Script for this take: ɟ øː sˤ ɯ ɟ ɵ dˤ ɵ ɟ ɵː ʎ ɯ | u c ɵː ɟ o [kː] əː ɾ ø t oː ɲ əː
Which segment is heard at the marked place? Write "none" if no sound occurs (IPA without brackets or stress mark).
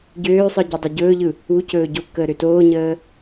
kː